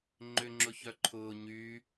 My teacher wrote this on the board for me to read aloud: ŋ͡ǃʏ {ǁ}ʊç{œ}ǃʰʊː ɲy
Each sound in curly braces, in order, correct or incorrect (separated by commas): incorrect, correct